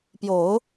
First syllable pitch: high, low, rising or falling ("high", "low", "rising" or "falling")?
low